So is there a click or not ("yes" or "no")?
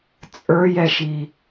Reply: no